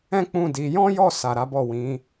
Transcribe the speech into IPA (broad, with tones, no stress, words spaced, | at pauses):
ɛ̃˦k͡pũ˦˨di˨˦ jɔ̃˦jɔ˦˨sa˨ ɾa˨˦bɔ˦˨wĩ˨˦